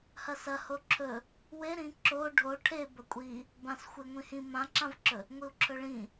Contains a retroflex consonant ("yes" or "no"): yes